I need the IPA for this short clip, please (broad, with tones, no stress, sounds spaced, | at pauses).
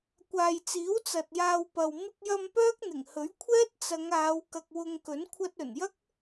kʷ aː˨ j t͡s iː˨˥ w t͡s ɐ˨ t̚ j aː˧ w p ɐ˨ w m ɪ˧ k̚ j ɐ˧ m p œː˥ k̚ n̪ ɪ˨˩ ŋ h ɵ˨˥ ɥ kʷʰ ɛː˥ t̚ t͡s ɐ˨˧ ŋ aː˨˧ w k ɐ˨ k̚ w ʊ˧ ŋ k ɵ˨˥ n kʷʰ ɐ˧ t̚ ɵ˨˩ n j ɐ˥ k̚